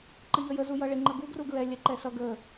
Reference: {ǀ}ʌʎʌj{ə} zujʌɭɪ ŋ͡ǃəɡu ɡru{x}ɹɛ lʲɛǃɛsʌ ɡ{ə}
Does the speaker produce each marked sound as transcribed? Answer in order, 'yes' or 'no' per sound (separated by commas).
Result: no, yes, no, yes